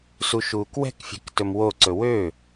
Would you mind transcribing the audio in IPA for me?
s u ʃ uː k w ɛ̤ k fʲ ɛ̤ k t ɵ m w o ǀ ɵ w ø

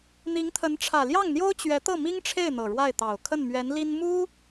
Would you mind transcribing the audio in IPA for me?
n̪ i˧˥ ŋ t̪ʰ ə˧˥ n ʈ͡ʂʰ ä˨˩ l j ɑ˥˩ ŋ n̪ j o˥ ʊ̯ t͡ɕ ɥ ɛ˧˥ t̪ ɤ˥˩ m i˥ ŋ ʈ͡ʂʰ e˥˩ ɪ̯ n̪ ɤ˨˩ ɻ w a˥˩ ɪ̯ t̪ ɑ˨˩ ʊ̯ kʰ ə˥˩ n m ɥ ɛ˧˥ n l i˥ n m u˥

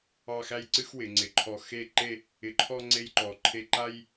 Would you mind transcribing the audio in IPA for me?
ɑ˥˧ x æ˥ j ǀ ɨ˥ x w ɪ˩˧ ŋ͡ǀ ɪ˩˧ ǃʰ ɔ˧˩ x e˥˧ ǃ e˥˧ | ɪ˧ ǃʰ ɔ˥ ŋ͡ǀ e˥ j ǃ ɔ˧˩ ǃʰ e˥˧ ǃ a˥ j

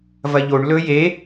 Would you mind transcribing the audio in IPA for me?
v ɐ ʎ o ɳ l ɵ j e

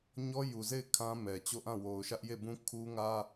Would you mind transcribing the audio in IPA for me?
ɲ ɔ˦ j u˨ z e˦˨ ɪ̯ kʰ ã˦ m ɛ˨ t͡ɕ o˦˨ ʔ ã˦˨ w o˨ ʊ̯ ʃ ä˦ ʔ j e˦˨ b ũ˦ kʰ u˦ ŋ ä˦

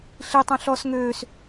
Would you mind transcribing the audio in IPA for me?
ɬ i tˤ ɛ̃ ɬ ɔ s ŋ øː s

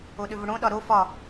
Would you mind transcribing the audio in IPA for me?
o ɗ ʏ v ʊ ɽ õ ɗ ɒ ɾ o f ɒ

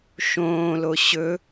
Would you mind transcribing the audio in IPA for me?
ʃ õː l o ɕ ɵ

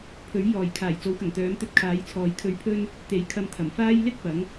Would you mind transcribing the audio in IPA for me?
pʰ ɵ˨˥ ɥ j ɔː˨˩ j kʰ aː˨˩ j t͡s o˨˥ w k ɐ˨˩ ŋ t̪ œː˨˥ m t̪ ɵ˧ t̚ kʰ aː˨˥ j t͡sʰ ɔː˨ j kʰ ɵ˧ ɥ pʰ ɵ˥ n | t̪ e˨˥ j kʰ ɐ˧ m t̪ʰ ɐ˨˩ m f aː˥ j l ɪ˥ k̚ p ɐ˨˥ ŋ

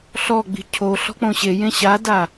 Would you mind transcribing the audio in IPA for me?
ɬ ɔ ɡ͡b i̤ cʰ o ɬ ɔ̤ k͡p õ ɕ e j ẽ ɕ a d a

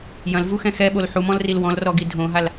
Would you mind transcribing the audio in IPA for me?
j ɐ̃ l v u x ɛ̃ x ɛ ɓ o l ħ u m ɔ̃ l r i l w ɔ̃ l r ɔ ɡ i dʱ õ ɦ a l

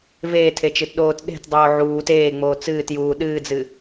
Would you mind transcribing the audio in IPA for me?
v eː tʰ e t͡ʃ ɨ t ɗ oː t ɗ e̤ t dˤ oː ʕ uː t eː ŋ͡m oː t͡s ɨː t j uː ɗ ɨː d͡z ɨ

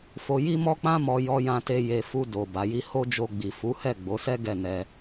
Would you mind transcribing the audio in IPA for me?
f o˧ j i˦ m ɔ˦ k͡p ã˦ m ɔ˧ j ɔ˧ j ã˧ t e˧ j e˧ f u˧ d o˨ b a˨˦ j i˦ h o˦ d͡ʒ o˧ ɡ͡b i˨ f u˨˦ h ɛ˦˨ ɡ͡b o˨˦ s ɛ˦ ɡ ɛ˦˨ n ɛ˧

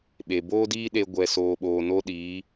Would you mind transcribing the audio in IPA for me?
ɓ e˨ b oː˦ d iː˦ ɗ e˧ ɡʷ ɛ˨ s oː˨ ɓ oː˨ n o˧ ɗ iː˨˦

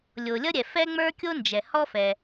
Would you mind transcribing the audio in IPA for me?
lʲ o˩ lʲ ʌ˥ ɾʲ ɛ˩ f ɛ˥ ŋ͡m ə˞˥ kʲ o˥ n d͡ʒ ɛ˩ h ɔ˥ f ɛ˩

